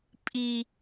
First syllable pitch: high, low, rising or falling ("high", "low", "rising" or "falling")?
high